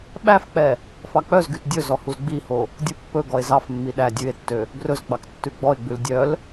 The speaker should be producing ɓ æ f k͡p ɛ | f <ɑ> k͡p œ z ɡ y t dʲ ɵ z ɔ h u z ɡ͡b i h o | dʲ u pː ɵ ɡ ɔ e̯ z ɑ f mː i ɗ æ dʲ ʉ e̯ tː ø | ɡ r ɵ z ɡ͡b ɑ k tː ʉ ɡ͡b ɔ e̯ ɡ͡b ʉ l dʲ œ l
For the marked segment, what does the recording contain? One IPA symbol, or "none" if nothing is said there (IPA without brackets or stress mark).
ɑ